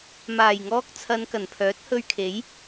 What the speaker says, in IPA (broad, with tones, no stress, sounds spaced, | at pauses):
m aː˨˩ j ŋ ɔː˧ k̚ t͡sʰ ɐ˨˧ n k ɐ˨˩ n pʰ œː˨˥ t̚ h ɵ˧ ɥ kʰ e˨˥ j